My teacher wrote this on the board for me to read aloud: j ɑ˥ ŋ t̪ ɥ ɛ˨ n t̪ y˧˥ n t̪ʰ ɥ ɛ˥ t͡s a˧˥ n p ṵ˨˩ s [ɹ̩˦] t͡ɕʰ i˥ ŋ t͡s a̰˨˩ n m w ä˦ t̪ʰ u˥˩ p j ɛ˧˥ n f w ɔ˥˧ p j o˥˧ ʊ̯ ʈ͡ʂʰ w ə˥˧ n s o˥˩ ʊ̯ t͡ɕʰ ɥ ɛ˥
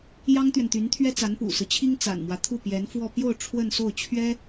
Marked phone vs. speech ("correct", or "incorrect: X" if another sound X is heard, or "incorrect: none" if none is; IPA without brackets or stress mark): correct